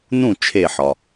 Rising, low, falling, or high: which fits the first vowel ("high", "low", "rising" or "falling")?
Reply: falling